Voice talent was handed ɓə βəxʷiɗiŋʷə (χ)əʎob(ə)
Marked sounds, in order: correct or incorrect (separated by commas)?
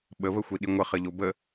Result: correct, correct